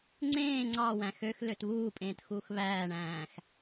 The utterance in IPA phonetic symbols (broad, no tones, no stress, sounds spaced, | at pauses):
ŋ͡ǀ ẽː ŋ͡ǀ ɑ w æ̃ x ø x l ø t β uː pʼ ẽː t x uː x β æː ɳ æ̃ː x